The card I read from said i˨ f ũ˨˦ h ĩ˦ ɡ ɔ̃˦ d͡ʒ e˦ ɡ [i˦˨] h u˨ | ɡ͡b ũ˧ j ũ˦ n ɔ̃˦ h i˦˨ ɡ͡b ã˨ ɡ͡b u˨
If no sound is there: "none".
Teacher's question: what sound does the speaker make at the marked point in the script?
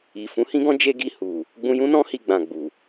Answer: i˦˨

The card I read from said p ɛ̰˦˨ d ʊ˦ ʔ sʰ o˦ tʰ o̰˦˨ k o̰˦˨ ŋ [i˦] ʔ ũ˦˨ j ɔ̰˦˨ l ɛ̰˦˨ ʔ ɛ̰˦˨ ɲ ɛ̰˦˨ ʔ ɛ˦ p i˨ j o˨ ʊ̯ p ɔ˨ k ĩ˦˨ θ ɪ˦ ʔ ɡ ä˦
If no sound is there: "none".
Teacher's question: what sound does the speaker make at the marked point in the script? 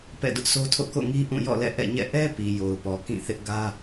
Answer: i˦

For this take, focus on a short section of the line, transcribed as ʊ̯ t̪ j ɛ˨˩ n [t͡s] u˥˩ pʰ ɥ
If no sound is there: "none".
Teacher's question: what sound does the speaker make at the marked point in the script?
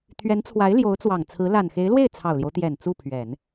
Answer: t͡s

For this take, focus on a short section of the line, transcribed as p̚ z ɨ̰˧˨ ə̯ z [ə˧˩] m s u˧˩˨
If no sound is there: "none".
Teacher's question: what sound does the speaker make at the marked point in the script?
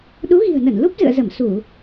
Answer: ə˧˩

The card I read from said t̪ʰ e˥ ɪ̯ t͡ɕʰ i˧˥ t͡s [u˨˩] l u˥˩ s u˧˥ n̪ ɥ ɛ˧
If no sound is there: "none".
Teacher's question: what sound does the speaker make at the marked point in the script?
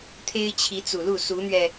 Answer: u˨˩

